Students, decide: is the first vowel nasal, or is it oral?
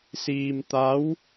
oral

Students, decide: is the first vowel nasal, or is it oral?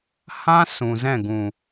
nasal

